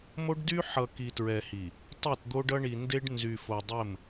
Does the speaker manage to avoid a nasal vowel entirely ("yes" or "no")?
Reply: yes